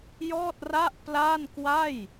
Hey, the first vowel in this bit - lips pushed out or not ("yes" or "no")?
yes